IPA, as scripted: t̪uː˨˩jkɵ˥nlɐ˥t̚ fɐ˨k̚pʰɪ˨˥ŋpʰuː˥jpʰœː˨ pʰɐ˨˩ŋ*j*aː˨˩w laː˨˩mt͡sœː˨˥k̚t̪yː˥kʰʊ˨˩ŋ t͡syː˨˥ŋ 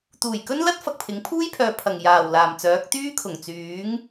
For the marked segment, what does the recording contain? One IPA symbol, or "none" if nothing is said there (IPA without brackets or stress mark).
j